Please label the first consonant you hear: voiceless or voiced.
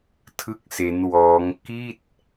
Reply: voiceless